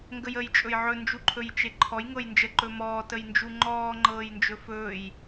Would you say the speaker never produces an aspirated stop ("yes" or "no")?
no